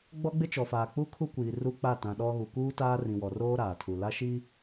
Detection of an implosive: present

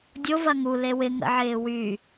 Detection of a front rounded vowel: present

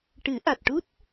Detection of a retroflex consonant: present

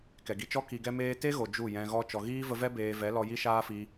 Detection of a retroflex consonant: absent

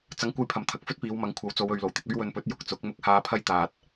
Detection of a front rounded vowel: absent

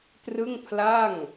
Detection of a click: absent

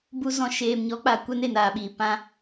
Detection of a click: absent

